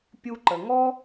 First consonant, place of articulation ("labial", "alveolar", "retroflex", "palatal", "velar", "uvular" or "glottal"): labial